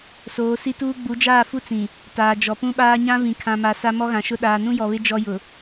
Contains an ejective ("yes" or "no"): no